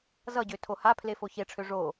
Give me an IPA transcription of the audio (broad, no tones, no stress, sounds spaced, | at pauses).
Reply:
z ʌ ɟ ø tʰ o h a pʰ l e f o ç e ʈ͡ʂʰ ø ʐ o